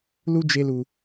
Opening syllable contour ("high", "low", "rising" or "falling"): high